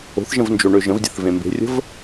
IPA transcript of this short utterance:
o̤θʒə̃vnd͡ʒoɳø ʒə̃vdʲə̤θvẽ mbe̤rʲə̤v

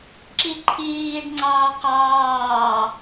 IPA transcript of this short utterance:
ǁiǃʰiːɖŋ͡ǀɑː qɑː

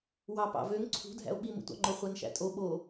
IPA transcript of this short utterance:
wɑpɑ̰vøŋ ǀʰṳdʱæ̰o̯ ɓimṵtʷɑ̰ŋ͡ǃo χʷænʃæ̰tʼo ɓo

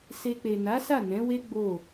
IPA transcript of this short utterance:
se˧ k͡pe˨na˨˦sa˦˨ nɛ̃˨˦we˦ ɡ͡bo˦˨

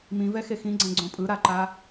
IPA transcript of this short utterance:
mĩvɛxe xĩɡ͡ǀɛ̃ɡ͡ǀõ pʼɯɾaǃa

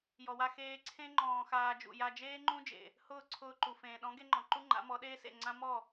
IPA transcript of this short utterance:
jɔ˨wa˧ xeː˧ǀʰẽ˦ ŋ͡ǃɔ̃ː˧xaː˧ d͡ʒṵ˨ja˧d͡ʒeː˦ŋ͡ǃũ˦ d͡ʒḛ˨ | hʊː˦˨ǀʰʊː˧ǃu˨ fẽː˨ɗɔ̃˨˦ ɡe˦ŋ͡ǃɔ̃˨ ǃu˦ŋ͡ǃa̰˨˦mɔ˨˦ ɗeː˦sḛ˦˨ ŋ͡ǀã˦ mɔ˦˨

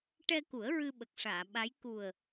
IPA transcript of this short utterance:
ʈɛ˧ku˨˩˦ə̯ ɹɨ˧ɓə˨˩k̚ʂaː˨˩˨ɓa˧˥j ku˨˩ə̯

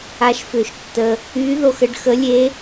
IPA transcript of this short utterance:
a˧ʃfʏ˧˩˧ʃtːə˧ | y˧˥ ðo˧xə˧˥ɖ xə˧˥lʲe˧˥

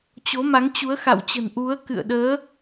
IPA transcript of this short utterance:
t͡ɕo˨˦ma˨˦ŋ t͡ɕu˨˦ə̯ xa̰˧˨wt͡ɕə̤˨˩n ʔu˨˦ə̯kɨ̰˧˨ə̯ɗəː˨˦

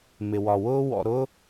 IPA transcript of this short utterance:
mɪ˩wɒ˩wʊː˥ wɔ̰˨ɾʊː˥

